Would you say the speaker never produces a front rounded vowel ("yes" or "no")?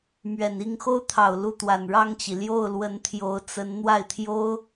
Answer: yes